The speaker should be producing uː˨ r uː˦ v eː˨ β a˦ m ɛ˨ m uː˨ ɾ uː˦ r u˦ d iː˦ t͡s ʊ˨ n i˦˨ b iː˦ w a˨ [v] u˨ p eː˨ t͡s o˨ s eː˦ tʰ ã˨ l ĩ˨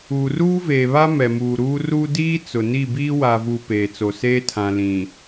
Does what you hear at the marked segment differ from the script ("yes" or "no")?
no